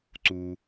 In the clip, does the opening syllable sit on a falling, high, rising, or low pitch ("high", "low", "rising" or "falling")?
low